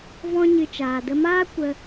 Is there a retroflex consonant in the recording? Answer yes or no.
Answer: no